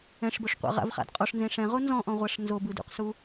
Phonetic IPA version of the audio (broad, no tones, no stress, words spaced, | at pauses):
ɛ̃ʂboʂqʷa̰ ʁa̰vχa̰d qʼɔʂnzẽ ʂɛ̃ʁo nzɔ̃ʔɔ̃ʁʷaʂ nzobɯdṵqsu